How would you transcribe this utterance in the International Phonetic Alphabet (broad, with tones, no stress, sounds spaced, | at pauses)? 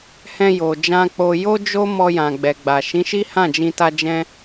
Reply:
h ɛ̃˧ j o˨ d͡ʒ ã˧ k͡p o˧ j o˦ d͡ʒ o˦ m ɔ˧ j ã˨ ɡ͡b ɛ˨ ɡ͡b a˨ ʃ ĩ˨˦ ʃ i˦ h ã˦˨ d͡ʒ ĩ˧ t a˧ d͡ʒ ɛ̃˦